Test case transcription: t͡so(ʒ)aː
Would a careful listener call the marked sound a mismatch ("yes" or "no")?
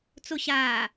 yes